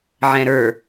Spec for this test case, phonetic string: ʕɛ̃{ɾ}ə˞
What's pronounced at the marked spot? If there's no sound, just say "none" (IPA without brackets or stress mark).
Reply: ɾ